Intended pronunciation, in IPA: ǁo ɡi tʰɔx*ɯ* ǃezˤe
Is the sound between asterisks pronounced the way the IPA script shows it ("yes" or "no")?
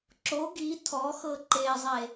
no